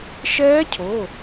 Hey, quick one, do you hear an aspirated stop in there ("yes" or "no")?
yes